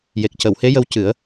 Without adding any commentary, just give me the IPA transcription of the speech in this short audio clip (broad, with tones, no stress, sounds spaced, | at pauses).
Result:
j e˨˩ k̚ c ə˨˩˨ w h e˧˥ j ə˧ w c ɨ˨˩˦ ə̯